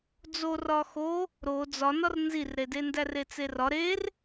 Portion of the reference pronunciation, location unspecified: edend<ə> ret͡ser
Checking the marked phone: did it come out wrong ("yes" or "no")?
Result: yes